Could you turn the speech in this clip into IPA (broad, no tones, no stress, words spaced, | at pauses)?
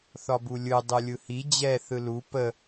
θɒbulʲɯ dˤɯlʲɯhi d͡ʑɛ θɯlu pə